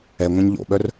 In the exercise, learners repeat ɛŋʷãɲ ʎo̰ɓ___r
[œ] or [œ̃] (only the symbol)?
œ